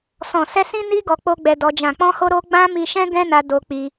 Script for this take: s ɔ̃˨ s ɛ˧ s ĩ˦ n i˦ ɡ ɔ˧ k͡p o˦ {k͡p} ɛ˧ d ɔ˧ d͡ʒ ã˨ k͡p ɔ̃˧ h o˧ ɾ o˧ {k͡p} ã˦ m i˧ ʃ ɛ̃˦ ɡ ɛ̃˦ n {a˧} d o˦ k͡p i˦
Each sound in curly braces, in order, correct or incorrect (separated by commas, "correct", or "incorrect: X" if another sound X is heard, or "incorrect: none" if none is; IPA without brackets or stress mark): incorrect: ɡ͡b, incorrect: ɡ͡b, correct